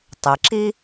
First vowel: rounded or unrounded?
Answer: unrounded